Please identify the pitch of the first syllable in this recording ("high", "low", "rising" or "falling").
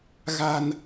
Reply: low